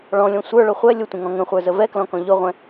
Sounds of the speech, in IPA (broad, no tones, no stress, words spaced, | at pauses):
ɭɔ̃lʲɔ̃ sʷə˞ɭʊ χʷɛ lʲʊtʷə̃ŋɔ̃ ŋə̃χʷə˞zə vɛklɔ̃kɔ̃ ʎʊʁʷɛ̃